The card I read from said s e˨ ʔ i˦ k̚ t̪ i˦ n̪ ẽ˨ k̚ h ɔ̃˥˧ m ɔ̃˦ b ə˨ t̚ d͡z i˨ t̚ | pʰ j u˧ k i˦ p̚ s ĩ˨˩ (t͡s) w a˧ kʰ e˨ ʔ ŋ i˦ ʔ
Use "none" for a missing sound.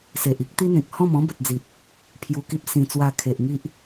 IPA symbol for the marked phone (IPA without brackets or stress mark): t͡s